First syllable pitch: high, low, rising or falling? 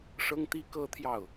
high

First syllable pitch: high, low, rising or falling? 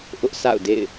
high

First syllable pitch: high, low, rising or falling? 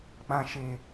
low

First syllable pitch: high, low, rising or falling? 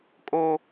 high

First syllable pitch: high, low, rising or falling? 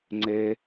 high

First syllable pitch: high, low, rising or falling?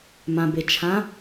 low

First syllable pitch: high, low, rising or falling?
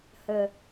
low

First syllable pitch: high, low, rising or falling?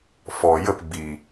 low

